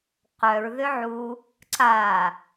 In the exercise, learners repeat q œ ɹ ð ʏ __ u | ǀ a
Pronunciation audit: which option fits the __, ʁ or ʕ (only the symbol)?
ʕ